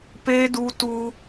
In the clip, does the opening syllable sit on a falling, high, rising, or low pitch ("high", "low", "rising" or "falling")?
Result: high